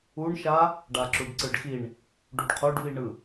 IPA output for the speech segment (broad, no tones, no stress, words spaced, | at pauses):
uɳʃa | ɖaǁuɖǀɯɖxiɳ | ɖuɖqʰoɖviɳɯ